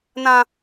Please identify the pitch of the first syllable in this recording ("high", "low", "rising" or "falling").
high